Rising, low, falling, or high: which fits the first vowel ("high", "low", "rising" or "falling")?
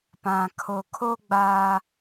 low